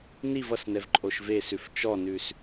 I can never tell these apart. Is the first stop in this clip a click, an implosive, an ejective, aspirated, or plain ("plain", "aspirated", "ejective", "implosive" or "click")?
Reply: click